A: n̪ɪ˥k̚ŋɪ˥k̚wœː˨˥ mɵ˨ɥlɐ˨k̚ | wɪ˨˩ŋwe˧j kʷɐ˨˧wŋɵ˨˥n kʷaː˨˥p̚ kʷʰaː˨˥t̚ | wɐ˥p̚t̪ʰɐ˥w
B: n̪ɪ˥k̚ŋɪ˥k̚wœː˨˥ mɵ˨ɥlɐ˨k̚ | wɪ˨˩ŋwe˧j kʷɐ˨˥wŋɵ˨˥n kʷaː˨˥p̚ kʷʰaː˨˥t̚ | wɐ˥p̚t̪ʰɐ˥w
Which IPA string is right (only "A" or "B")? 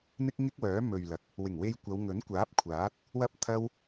A